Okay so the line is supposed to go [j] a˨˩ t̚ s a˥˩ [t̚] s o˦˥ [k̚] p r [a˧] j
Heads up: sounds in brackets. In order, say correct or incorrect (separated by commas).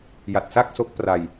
correct, incorrect, correct, correct